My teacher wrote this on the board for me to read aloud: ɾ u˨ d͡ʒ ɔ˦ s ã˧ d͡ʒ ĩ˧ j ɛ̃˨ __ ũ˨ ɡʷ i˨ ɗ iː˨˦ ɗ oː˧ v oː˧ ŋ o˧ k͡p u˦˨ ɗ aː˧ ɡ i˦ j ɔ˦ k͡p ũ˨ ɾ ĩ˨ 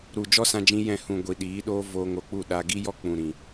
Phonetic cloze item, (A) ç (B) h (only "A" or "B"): B